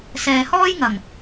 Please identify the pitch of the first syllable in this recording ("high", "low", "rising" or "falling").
low